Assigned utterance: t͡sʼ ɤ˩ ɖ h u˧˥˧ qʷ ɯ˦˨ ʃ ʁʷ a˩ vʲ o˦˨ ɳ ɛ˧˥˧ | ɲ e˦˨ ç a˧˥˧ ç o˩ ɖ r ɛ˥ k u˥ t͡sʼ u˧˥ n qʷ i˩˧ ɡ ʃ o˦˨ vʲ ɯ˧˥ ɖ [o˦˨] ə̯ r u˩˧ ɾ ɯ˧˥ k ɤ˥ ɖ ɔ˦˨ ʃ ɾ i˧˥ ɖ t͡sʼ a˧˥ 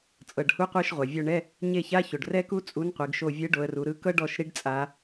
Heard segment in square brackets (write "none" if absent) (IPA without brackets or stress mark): o˩˧